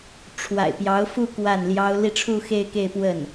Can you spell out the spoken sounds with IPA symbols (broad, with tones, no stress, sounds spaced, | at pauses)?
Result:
ʈ͡ʂʰ w a̰˨˩ ɪ̯ p j ɑ˧˥ ʊ̯ f u˥˧ k w a˥˩ n l j ɑ˥ ʊ̯ l i˥˧ ʈ͡ʂʰ u˥˧ x e˥˧ ɪ̯ k e˥˧ ɪ̯ p w ə˥˩ n